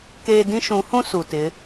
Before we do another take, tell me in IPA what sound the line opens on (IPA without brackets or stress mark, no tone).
k